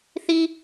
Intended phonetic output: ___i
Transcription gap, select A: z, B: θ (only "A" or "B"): B